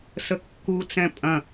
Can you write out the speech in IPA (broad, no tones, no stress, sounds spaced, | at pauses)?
s ə kː u t͡s ɛ̃ pʼ ɐ̃